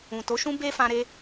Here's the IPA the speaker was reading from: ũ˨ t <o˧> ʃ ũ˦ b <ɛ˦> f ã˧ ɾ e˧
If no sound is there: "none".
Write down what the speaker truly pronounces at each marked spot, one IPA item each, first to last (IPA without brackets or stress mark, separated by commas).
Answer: o˨˦, e˦